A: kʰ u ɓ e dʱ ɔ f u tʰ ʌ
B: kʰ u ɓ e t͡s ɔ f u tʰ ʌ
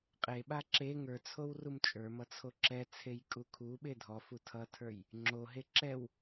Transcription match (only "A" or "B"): A